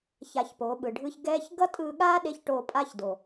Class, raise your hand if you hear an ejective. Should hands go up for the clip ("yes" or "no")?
yes